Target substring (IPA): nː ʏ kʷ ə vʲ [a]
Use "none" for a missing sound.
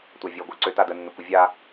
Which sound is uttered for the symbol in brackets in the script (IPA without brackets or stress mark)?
a